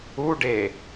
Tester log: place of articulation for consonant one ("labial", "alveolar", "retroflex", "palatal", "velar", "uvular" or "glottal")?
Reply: retroflex